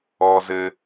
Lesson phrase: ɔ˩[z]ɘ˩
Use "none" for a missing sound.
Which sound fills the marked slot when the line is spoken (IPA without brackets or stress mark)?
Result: z